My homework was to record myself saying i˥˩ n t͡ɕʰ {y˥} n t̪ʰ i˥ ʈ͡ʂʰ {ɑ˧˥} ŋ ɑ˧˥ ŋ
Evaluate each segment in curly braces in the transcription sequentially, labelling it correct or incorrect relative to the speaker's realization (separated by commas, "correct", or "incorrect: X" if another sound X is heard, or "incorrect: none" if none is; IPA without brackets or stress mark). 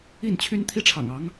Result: correct, incorrect: ɑ̰˨˩